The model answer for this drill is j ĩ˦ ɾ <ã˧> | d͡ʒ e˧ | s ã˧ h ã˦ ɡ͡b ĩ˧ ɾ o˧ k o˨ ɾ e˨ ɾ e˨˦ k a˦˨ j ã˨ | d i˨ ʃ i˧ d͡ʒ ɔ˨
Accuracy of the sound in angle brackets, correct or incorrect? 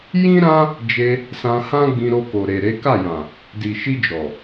incorrect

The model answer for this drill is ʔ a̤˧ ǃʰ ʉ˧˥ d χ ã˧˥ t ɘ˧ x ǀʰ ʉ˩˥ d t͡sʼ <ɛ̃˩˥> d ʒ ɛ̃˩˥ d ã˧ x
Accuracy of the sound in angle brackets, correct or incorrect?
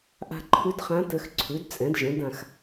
correct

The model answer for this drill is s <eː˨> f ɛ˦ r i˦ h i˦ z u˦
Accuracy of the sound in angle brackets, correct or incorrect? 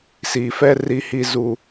incorrect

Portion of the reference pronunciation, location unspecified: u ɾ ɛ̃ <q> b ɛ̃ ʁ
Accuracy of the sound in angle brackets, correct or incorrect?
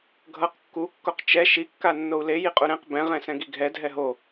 correct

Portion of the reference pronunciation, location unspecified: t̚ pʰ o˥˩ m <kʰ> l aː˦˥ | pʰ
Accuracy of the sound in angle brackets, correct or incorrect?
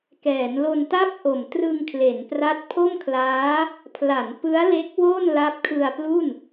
correct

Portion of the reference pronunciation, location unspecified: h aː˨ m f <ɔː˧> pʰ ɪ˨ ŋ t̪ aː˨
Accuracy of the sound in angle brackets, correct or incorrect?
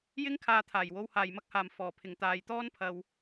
incorrect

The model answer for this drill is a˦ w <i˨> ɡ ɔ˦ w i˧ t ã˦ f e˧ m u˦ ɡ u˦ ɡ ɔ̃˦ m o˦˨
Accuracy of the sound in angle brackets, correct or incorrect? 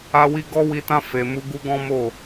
incorrect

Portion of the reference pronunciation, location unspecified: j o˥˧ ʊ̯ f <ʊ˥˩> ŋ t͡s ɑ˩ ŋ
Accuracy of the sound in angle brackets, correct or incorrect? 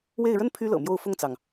correct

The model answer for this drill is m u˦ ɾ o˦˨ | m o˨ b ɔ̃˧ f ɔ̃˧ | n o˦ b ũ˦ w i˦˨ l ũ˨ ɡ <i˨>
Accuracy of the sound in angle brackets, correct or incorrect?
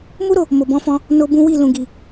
correct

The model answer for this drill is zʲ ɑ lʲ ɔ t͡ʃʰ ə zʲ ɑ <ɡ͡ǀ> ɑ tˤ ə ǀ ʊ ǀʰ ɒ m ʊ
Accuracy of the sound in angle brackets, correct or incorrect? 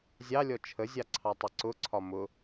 incorrect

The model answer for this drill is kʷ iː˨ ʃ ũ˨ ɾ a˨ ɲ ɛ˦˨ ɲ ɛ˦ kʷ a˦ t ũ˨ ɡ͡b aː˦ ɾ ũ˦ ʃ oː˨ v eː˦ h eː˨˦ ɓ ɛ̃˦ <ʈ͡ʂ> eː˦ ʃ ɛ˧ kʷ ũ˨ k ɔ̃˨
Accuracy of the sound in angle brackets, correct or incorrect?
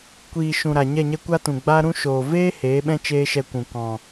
incorrect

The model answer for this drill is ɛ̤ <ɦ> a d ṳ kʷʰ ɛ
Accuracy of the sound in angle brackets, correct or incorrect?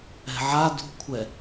incorrect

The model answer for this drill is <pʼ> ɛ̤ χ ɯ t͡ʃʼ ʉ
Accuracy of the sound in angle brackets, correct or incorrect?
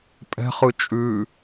correct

